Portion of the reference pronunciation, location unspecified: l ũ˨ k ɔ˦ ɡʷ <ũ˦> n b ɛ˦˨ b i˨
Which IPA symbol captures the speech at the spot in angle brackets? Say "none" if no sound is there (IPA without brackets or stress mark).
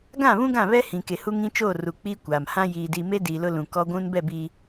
ũ˦